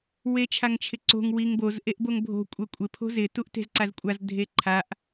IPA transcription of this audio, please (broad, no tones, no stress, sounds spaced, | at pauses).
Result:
w e t͡ʃʰ a ŋ t͡ʃʰ ɪ ǀ o̤ ŋ w i ŋ b o z ʔ e ʔ b o ŋ bʱ o̤ kʷʼ ɛ kʷʼ ɪ pʰ o̤ z ɪ t u ʔ t e̤ z ǀ a z kʷʼ a z dʱ e ǃʰ a ʔ